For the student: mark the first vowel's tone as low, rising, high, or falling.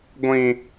high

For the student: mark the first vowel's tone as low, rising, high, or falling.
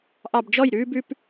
low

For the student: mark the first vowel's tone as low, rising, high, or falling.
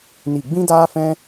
falling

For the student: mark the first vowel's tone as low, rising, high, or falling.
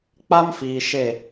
high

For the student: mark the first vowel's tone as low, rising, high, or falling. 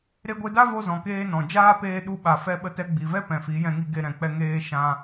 high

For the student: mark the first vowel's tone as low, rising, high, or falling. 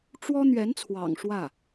high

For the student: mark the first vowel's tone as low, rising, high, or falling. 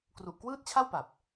low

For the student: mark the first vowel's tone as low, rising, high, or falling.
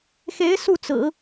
rising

